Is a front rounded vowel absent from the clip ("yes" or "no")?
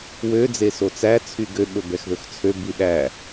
no